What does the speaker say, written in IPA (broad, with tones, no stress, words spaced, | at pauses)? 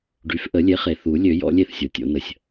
ɖy˩˥fʔə˨˩˦lʲe˩˥χe˩ θu˨˩˦lʲø˨˩˦ jɔ̰˩˥lʲe˥˩θsʲo˩tʲo̰˨˩˦ nə˩sʲ